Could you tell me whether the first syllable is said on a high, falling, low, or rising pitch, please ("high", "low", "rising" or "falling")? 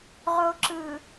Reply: low